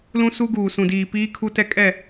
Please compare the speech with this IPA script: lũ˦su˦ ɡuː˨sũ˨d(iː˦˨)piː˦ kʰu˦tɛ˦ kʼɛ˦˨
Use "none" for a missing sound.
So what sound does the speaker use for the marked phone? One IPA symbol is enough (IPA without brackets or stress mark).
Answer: iː˨